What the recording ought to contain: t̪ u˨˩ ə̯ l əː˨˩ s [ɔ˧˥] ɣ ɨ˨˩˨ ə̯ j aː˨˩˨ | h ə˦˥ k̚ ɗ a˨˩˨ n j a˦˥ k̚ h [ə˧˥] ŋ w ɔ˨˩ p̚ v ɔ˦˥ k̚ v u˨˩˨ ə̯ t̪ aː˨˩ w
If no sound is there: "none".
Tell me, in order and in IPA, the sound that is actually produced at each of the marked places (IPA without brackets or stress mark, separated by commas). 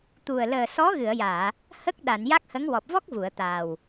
ɔ˧˥, ə˧˥